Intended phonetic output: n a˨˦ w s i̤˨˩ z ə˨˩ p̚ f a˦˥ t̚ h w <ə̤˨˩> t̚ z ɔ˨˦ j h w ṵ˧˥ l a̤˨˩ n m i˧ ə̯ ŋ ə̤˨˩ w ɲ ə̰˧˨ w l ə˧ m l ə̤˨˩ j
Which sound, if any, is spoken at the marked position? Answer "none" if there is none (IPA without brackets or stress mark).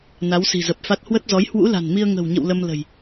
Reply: ə˦˥